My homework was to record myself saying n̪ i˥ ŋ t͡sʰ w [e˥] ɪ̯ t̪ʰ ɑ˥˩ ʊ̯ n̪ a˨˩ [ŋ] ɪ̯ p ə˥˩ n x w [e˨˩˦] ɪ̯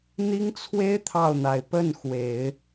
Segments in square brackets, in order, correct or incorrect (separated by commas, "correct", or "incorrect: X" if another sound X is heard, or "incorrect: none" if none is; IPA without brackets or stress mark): correct, incorrect: none, correct